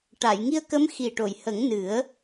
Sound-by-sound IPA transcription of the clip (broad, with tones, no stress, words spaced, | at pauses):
ʈa˨˩˨jŋi˧ə̯kə˧˥m xi˨˩ʈo˨˩˨j hə˨˩˦ŋnɨ˨˩˦ə̯